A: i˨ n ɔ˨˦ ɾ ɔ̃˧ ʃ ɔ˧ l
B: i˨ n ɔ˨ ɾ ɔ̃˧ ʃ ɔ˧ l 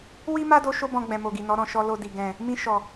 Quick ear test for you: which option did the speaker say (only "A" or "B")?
A